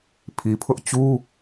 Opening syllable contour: low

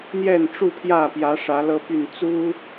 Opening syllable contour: falling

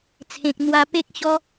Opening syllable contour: low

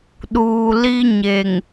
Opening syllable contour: low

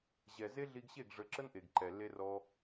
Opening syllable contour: low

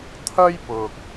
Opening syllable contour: high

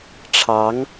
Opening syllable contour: rising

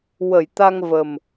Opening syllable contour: low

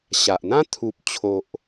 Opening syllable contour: low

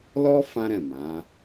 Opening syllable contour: high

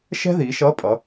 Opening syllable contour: high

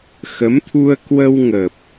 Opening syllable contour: rising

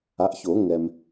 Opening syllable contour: rising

